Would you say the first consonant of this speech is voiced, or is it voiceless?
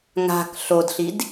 voiced